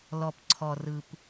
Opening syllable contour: low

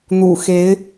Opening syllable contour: low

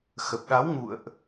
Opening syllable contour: low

